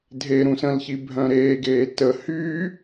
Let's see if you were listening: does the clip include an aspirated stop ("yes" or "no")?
no